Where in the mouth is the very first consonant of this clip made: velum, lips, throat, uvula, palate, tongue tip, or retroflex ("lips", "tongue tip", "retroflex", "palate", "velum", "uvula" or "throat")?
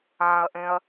throat